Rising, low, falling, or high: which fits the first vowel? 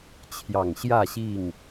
low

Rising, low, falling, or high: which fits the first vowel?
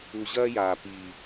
low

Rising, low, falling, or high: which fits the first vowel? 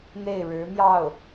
falling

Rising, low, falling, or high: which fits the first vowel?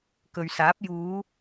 low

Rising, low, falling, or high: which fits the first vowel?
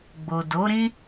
low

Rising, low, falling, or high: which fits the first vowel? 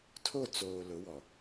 falling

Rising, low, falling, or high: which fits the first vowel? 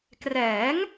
rising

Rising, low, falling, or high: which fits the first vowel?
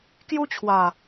high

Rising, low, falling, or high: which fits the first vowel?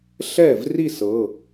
falling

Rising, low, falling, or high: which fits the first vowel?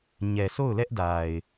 low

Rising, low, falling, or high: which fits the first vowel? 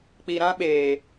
low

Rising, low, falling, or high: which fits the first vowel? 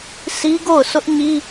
high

